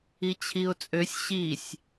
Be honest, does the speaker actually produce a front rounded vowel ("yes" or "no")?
yes